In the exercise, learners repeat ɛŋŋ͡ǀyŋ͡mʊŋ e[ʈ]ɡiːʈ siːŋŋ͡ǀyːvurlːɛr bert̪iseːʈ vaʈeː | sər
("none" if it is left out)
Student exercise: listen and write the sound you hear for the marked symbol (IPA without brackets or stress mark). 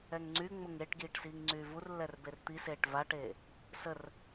ʈ